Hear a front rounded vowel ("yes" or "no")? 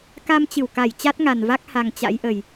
no